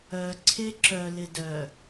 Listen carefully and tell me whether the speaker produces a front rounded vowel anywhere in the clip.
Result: yes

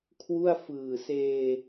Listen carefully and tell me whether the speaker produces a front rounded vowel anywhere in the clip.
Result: no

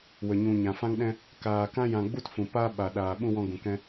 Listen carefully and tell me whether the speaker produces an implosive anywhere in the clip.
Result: yes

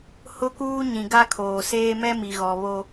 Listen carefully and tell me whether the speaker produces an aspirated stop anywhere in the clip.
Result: yes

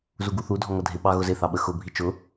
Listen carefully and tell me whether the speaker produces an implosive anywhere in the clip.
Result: yes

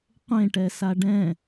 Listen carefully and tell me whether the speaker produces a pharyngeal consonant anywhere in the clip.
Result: no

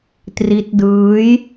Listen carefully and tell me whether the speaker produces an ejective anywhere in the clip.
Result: no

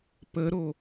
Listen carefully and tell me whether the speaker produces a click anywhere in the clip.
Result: no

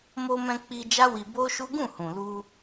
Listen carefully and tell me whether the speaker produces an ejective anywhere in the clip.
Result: no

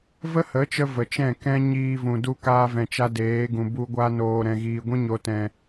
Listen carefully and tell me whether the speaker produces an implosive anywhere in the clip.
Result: no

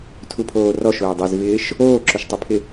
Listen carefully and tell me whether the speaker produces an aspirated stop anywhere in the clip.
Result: yes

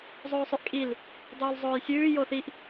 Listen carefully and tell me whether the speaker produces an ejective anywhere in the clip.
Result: yes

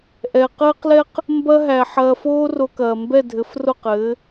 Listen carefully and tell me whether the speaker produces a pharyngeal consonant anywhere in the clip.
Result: yes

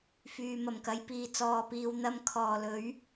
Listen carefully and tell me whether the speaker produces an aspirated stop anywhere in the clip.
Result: yes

